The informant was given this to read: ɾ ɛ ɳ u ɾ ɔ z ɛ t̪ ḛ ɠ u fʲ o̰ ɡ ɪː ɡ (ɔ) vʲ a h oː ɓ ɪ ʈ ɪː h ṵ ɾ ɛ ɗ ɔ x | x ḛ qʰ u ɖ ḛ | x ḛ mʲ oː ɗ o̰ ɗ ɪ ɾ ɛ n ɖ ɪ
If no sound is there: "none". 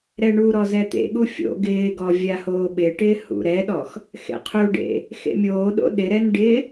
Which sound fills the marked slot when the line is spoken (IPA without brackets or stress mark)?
ɔ